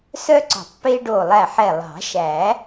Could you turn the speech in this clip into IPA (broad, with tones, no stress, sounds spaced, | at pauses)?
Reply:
s œ˦ ǀ ɔ̤˨˩˦ tˤ p e˦ ɖ o˧˩ lˠ æ˧˩ ħ ɛ˧˩ lˠ ɑ̤˨˩˦ ʃ æ˨˩˦